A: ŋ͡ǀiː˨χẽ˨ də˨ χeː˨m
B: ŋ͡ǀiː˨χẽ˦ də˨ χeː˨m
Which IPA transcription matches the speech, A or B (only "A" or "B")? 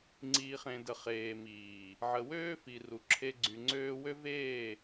A